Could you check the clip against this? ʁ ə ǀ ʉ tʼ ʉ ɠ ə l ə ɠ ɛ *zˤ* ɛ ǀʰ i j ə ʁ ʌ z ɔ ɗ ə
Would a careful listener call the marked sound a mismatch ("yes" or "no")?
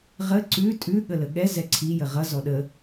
yes